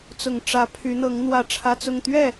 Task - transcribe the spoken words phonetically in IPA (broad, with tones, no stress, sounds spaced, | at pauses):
t͡s ʊ˨˩ ŋ ʈ͡ʂ ä˧˥ pʰ y˧˥ n̪ ɤ˧˥ ŋ n̪ w ä˥˩ ʈ͡ʂʰ ä˥ t͡s ʊ˥˧ ŋ t̪ ɥ ɛ˥˩